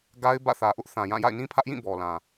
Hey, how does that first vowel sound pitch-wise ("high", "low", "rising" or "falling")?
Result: high